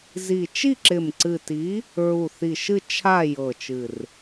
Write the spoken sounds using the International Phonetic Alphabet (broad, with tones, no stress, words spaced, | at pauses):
zi˨˩t͡ʃi˦˨ǁɪ˨˩m ǀɨ˨˩ti˨˥ | ɹu˨˩θi˨˩ ʃɨ˦˨t͡ʃʰa˦˨ jɤ˨˩t͡ʃɨ˨˩r